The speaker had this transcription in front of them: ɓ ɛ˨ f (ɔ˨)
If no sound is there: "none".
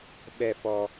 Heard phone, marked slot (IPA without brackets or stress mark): ɔ˨